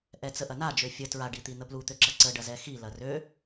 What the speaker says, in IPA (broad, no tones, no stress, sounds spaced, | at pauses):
ʔ ɛ t͡s ə ʔ ɐ n a d͡ʒ ø fʲ ə t ɹ a ɖ i t̪ i n̪ ə p l u t̪ ø ǁ ɐ ǀ ə ɖ ɐ z ɛ x i l ɐ r ø